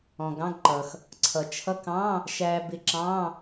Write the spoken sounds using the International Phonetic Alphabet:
ɔ̃˩ ɡ ɑ̃˧˥˧ ɡ ǃ ʌ˩ x | ǀʰ ʌ˩ t͡ʃʰ ʌ˧˥˧ k ɑ̃˧˥˧ | ʃ æ˧ b ɪ˧ ǁ ɑ̃˧˥˧

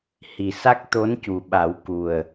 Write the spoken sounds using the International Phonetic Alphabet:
h i˨˩ s a˦˥ k̚ t̪ o˧˥ n c u˨˩ ɓ a˨˩˦ w k u˨˩ ə̯

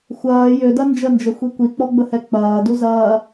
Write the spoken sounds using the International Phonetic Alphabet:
xʷ ɐː j ø d ɐ n d͡ʒ ə n d͡ʒ ə xʷ i kʷ i k͡p ɔ ɡ͡b ə h ɛ k͡p ɐː d u z ɐː

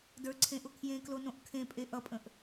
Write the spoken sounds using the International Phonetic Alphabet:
d ə˞ ǀʰ ẽ ʔ ʊ kʰ j ẽ k l o n õ ʔ kʰ ẽ pʼ e ʔ ʌ pʼ ə̃ ʔ

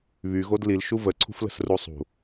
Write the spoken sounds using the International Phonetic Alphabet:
β y ɣ o d l i l ʃ u v ə ǀʰ ṳ f l ə̤ s r u sˤ ṳ

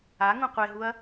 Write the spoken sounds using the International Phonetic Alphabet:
a ŋ ũ qʷ e ɦ u ɐ̯

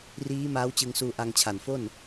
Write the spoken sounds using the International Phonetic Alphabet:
r iː˦˥ m aː˦˥ w t͡ɕ ɯ˧ ŋ s uː˧ ʔ a˧ ŋ t͡ɕʰ a˨˩ n f o˥˩ n

